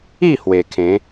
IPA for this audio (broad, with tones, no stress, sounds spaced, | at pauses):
i˥˧ h w e˨˩ kʰ ẽ˨˦